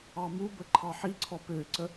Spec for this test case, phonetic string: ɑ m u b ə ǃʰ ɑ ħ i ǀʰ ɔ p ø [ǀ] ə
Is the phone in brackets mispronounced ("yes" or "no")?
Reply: no